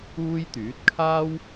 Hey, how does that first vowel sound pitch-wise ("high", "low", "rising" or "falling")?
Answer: high